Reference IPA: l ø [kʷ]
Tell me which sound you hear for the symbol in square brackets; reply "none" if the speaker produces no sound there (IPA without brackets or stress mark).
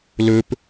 p